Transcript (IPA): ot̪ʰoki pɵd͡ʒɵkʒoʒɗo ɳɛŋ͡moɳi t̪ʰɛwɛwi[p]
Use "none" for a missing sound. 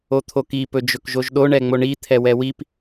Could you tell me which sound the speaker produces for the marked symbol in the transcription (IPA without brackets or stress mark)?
p